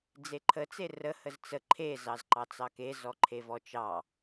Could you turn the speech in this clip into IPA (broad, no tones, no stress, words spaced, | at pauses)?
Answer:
d͡zeǃʰə t͡serə həzt͡sə ǃʰe zɑzǃɑt͡sɑke zɔǃʰevɔt͡ʃɑ